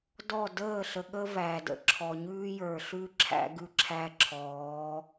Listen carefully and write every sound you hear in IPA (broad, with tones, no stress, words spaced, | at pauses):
dɔ˦˨ dəː˦˨ɬə˨ ɠə˦ væ˨də̰˨ǁʰɔ˨ɲʉː˦ jə˞˨ɬʉ˦ ǁʰæ̰˦ɡʉ˦ǁʰæ˦ǁʰɔː˨˦